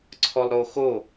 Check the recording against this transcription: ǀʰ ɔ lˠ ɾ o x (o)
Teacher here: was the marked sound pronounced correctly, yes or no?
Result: yes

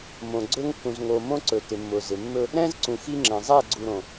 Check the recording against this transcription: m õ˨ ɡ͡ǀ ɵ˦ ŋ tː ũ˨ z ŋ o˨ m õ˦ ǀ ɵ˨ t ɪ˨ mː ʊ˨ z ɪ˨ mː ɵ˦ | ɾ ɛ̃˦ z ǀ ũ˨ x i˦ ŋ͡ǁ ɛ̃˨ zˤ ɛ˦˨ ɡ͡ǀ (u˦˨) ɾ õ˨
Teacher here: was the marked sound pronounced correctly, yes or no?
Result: no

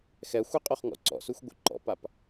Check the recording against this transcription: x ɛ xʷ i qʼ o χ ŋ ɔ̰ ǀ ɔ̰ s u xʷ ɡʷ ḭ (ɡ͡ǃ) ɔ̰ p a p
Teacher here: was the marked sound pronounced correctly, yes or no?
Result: no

